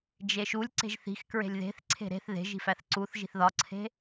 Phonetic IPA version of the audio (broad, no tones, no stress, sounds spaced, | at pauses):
d͡ʒ e ʃ u lʲ ǀ e̤ ʒ θ i̤ x k ɹ e̤ lʲ ð e̤ θ ǀʰ e̤ ɾ e̤ θ ð e̤ ʒ i̤ f æ θ ǀ u θ ʒ i̤ θ ð ɒ ǀʰ e̤